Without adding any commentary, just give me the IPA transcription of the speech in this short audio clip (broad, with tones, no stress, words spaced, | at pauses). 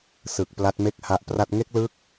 sɯ˨˩k̚ pla˦˥t̚ me˥˩k̚ha˦˥ʔpra˥˩t̚ ŋe˦˥k̚lɯ˦˥k̚